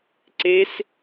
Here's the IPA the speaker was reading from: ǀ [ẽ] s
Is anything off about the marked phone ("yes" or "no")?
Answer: yes